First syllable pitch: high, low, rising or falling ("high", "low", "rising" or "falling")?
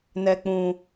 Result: low